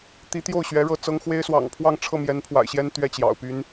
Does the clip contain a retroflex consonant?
yes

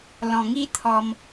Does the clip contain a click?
no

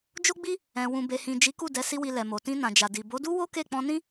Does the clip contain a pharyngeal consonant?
no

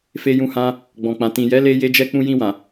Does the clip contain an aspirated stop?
no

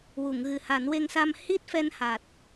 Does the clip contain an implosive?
no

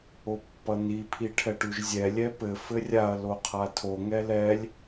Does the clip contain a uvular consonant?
yes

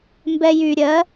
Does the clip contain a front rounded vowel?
yes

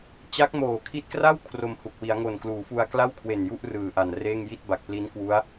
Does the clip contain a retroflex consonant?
no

